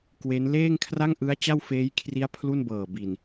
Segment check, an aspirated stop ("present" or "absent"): present